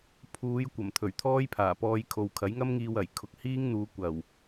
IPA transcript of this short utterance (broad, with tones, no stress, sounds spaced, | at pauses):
pʰ uː˨˧ j kʷ ɐ˨˩ m t̪ʰ ɵ˨˩ ɥ t̪ʰ ɔː˥ j pʰ aː˨˩ p ɔː˧ j kʰ o˨ w kʰ ɐ˨˥ j ŋ ɐ˥ m ŋ iː˧ w ɐ˨˩ j kʰ ʊ˨ k̚ h iː˥ ŋ n̪ uː˨˧ kʷ ɐ˨˩ w